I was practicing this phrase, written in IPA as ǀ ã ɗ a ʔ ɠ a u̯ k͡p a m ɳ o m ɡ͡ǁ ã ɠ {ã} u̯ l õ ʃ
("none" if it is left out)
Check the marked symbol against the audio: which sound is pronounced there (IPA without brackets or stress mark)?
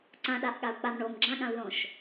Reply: ã